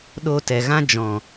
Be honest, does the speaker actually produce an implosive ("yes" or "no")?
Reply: yes